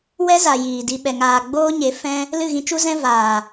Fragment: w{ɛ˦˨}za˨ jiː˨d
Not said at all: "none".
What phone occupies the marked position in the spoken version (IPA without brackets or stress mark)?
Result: ɛ˦